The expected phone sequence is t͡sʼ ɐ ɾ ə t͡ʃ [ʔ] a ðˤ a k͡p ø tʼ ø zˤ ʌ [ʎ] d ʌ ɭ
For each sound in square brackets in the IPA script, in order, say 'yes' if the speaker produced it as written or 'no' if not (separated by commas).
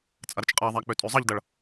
no, yes